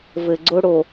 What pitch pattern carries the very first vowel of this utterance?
low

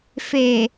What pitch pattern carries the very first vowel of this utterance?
low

